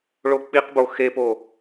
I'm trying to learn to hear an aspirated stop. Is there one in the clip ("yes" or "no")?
no